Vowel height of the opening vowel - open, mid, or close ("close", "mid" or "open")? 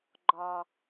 open